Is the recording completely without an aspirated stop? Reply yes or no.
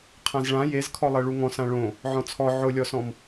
no